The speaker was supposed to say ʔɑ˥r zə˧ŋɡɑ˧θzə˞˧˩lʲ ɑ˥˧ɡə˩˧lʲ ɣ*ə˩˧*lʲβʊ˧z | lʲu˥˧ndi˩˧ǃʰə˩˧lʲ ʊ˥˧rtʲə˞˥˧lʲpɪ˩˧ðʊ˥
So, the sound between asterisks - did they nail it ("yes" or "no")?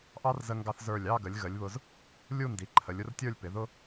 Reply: yes